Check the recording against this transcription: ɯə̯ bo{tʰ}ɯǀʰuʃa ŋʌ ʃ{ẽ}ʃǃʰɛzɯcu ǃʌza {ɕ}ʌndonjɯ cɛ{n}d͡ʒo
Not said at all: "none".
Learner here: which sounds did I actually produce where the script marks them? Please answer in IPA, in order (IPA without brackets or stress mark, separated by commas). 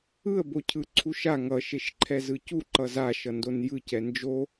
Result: cʰ, e, ʃ, n